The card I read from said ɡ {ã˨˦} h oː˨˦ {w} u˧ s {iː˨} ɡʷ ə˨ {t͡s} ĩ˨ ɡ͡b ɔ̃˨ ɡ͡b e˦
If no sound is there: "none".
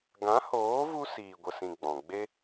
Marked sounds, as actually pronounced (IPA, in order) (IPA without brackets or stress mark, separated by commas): ã˨˦, v, iː˨, s